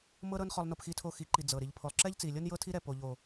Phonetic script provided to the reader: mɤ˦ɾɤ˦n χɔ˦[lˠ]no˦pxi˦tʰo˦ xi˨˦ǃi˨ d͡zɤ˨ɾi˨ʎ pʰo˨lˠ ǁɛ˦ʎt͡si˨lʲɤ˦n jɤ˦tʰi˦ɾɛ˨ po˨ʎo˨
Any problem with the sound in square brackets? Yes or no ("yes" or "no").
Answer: no